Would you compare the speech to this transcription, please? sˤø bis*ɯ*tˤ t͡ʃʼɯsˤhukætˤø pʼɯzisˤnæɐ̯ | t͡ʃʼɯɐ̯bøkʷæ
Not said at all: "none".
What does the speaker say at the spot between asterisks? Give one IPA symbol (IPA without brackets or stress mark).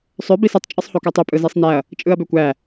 ɯ